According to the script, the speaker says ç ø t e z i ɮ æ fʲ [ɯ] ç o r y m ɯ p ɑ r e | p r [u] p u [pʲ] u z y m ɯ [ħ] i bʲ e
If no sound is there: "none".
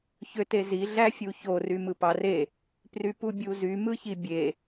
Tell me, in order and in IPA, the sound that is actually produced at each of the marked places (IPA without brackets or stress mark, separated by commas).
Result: u, y, bʲ, ç